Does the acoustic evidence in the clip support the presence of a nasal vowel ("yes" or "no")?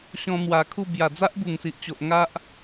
yes